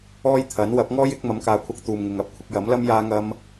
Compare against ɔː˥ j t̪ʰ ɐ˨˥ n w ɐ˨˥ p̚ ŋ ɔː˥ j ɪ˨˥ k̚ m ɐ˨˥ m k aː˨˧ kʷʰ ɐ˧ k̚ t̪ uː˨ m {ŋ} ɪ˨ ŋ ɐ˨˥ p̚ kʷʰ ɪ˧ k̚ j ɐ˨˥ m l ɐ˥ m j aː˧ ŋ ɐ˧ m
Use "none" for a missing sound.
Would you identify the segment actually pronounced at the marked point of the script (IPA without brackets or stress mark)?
ŋ